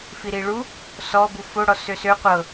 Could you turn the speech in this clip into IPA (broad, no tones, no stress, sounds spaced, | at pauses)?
f i ɾ i ɭ u | s ɔ b u f o ɽ ɔ s ø s ø qʷ ɤ